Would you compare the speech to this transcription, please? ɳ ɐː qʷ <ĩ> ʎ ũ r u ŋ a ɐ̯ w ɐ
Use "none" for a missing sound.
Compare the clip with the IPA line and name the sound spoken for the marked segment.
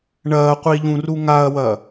i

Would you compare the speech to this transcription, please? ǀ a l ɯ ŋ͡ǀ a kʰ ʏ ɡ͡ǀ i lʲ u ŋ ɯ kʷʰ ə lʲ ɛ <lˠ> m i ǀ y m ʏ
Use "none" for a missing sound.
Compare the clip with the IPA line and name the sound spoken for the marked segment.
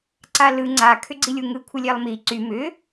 lˠ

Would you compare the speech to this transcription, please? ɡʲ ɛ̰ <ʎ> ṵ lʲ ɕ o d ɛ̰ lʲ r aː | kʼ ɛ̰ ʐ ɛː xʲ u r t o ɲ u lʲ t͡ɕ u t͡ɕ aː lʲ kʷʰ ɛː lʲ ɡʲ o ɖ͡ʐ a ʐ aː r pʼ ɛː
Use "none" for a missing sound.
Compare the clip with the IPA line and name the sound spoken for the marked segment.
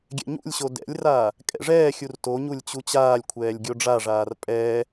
ɲ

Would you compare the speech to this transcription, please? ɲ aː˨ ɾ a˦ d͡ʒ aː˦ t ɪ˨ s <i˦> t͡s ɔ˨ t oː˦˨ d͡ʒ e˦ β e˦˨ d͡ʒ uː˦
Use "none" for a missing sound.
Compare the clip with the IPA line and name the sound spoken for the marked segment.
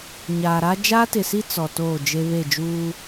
i˦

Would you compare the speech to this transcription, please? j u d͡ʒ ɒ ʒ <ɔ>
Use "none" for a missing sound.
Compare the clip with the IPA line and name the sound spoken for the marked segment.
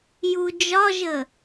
ə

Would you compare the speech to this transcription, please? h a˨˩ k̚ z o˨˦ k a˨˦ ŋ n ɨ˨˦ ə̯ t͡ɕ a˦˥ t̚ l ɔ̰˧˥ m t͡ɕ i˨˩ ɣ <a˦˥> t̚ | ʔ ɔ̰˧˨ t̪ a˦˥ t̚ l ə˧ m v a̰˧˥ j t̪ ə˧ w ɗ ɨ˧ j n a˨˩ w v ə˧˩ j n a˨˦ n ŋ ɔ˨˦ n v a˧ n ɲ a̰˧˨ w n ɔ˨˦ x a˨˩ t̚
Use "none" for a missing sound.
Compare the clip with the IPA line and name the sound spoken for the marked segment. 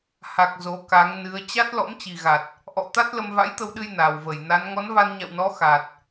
a˨˩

